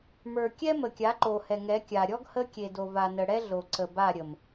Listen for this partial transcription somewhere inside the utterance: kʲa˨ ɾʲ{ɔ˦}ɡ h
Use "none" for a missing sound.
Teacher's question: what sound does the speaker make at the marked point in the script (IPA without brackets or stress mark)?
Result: ɔ˦